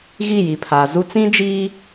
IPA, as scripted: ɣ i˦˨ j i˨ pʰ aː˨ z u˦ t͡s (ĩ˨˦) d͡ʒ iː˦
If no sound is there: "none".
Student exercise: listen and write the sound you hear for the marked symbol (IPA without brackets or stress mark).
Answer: ĩ˦